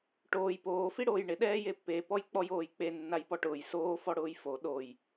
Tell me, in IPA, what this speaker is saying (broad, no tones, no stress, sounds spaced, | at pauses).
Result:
ʈ oː j p oː f i ɽ oː j ɳ ɪ ɗ ɛː j e pː e p ɔ j k͡p ɔ j oː j k͡p e nː a j p ɔ ʈ ʊː j s oː f ɔ ɽ ʊː j f o ɗ o j